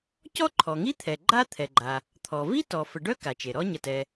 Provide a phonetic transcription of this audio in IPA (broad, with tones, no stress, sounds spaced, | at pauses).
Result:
c ɔ˥ ǃʰ ɔ˩ ŋ i˥ t̪ʰ ɛ˩ ɡ͡ǃ a˥ t̪ʰ ɛ˩ ɡ͡ǃ a˩ | t̪ʰ ɔ˩ v i˥ t ɔ˩ f ə˩ ɖ œ˥ k a˩ t͡ʃ e˩ ɾ ɔ˥ ɲ ə˩ t ɛ˩